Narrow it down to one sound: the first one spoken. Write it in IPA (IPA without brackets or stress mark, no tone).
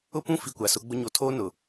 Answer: ʊ